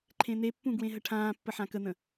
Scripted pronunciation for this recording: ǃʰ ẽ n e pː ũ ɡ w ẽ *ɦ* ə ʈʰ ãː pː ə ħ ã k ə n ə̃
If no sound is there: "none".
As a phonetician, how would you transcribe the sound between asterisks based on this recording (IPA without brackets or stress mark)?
ɦ